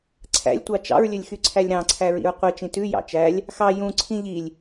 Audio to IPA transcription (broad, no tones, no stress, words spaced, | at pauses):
ǀʰæ̰lʲtʷɑ t͡ʃɑ̰ɹlʲɵlʲxyǀʰælʲ ɾɑ̃ǀʰæɹḭɹ qʷit͡ʃĩ tʉjɑ̰ t͡ʃælʲ | xɑ jũ ǀʰĩʎilʲ